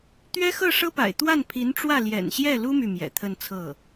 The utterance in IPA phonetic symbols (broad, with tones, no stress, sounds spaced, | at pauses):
t̪ ɥ ɛ˥ x ɤ˥˩ ʂ ɤ˥ p a̰˨˩ ɪ̯ t̪ w a˥˩ n pʰ i˧˥ n ʈ͡ʂ w ä˥˩ l j ɛ̰˨˩ n ɕ j ɛ˥˩ l u˥ m y˥˩ m j ɛ̰˨˩ t̪ʰ ə˥˧ n t͡sʰ ɤ˥˩